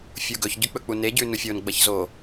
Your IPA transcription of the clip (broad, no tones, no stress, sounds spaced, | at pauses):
fʲ u ɡ ɵ ç ɟ ʉ k͡p ɵ k͡p u n e ɟ ʉ n u fʲ o n ɡ͡b ɐ ç z o